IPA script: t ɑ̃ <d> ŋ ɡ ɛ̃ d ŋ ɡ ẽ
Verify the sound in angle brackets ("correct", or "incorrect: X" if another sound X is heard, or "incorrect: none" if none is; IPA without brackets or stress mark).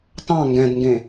incorrect: none